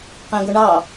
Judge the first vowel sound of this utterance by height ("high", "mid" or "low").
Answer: low